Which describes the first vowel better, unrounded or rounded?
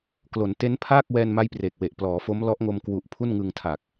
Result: rounded